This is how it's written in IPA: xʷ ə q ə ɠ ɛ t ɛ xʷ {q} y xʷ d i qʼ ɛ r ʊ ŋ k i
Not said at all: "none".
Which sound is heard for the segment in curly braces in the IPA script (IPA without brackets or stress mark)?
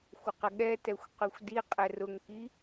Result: q